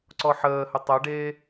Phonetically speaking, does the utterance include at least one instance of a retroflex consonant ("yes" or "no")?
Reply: yes